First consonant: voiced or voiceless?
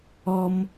voiced